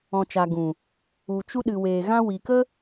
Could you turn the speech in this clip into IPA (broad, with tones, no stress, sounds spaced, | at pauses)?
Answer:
ɔ̃˨ t͡ʃ aː˨ ɡ ũ˨ | u˨ t͡ʃ u˧ ɗ ɨ˨ w eː˨ ɣ ã˧ w i˨ k ə˦